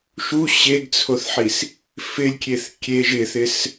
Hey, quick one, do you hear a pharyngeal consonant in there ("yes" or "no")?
yes